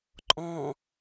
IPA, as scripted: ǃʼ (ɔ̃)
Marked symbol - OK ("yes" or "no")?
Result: yes